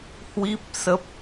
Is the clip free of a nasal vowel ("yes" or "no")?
yes